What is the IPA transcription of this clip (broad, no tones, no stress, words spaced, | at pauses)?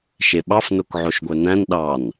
ʃeɓɑfnok ʕoʃɡʷœnæ̃n ɗɑn